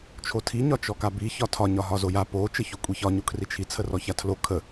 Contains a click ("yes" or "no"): no